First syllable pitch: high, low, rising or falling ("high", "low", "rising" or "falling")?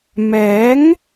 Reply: rising